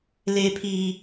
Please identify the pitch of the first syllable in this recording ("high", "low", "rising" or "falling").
low